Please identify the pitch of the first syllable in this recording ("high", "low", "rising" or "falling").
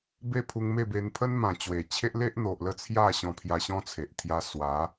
falling